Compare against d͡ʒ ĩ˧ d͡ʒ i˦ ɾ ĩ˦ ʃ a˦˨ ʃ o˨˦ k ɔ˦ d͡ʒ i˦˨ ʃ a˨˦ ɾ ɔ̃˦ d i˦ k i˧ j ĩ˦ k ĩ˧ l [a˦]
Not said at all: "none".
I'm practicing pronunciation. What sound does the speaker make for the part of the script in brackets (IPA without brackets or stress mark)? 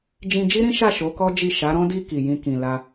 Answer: a˦